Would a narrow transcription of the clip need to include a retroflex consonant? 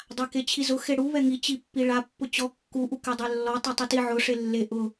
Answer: yes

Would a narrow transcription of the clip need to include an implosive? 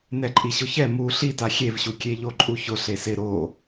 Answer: no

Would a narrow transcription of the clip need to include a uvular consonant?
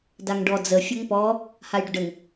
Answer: no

